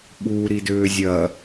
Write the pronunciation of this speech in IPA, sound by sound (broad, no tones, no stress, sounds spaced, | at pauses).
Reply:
ɓ u ɾ i d ʏː zʲ ɐ